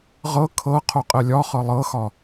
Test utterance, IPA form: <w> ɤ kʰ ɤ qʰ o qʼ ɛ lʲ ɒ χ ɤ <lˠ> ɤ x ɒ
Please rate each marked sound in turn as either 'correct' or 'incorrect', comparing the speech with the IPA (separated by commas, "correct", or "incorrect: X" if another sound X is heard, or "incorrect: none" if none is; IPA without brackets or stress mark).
incorrect: ʁ, correct